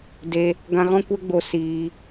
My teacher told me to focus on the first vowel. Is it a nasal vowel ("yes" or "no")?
no